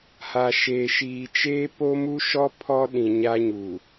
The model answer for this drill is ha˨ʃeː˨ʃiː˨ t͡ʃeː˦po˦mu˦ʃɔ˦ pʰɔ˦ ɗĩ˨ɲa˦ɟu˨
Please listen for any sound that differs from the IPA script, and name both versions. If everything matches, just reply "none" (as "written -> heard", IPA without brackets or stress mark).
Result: ɟ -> ɲ